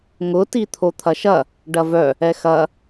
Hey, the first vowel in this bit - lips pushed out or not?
yes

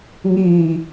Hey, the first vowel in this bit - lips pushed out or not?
no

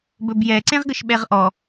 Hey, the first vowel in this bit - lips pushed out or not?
yes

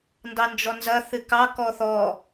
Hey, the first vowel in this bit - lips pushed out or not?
no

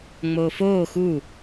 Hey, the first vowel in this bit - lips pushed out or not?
yes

